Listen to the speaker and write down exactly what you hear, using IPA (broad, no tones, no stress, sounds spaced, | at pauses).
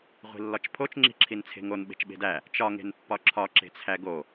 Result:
ʁʷ i̤ lː ɒ t͡ʃ pʰ o t͡ʃ ŋ͡ǁ i̤ ǁʰ i n t͡sʰ e̤ ŋ o n ɓ e̤ t͡ʃ ɓ e̤ d æ | t͡ʃ ɒ ŋ e̤ n pː ɒ ǁʰ ɒ ǁ e̤ t͡sʰ æ ɡ o